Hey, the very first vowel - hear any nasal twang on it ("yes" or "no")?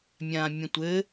yes